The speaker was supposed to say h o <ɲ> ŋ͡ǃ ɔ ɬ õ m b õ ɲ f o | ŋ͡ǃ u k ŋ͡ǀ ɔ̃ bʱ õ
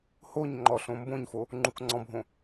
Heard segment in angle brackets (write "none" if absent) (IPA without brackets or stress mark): ɲ